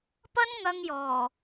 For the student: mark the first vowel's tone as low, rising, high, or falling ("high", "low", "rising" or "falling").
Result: high